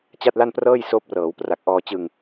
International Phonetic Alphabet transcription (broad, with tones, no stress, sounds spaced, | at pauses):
t͡ɕ a˥˩ t̚ l a˥˩ n p r ɤː˥˩ j s oː˦˥ p̚ r ɤː˩˦ w p r a˨˩ k̚ ʔ ɔː˧ t͡ɕ ɯ˧ ŋ